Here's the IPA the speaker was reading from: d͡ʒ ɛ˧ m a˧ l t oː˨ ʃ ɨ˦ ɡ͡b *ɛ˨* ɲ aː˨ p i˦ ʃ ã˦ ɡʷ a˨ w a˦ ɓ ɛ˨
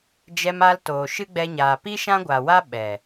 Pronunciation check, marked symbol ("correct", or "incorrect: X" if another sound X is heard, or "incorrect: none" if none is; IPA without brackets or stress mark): incorrect: ɛ˧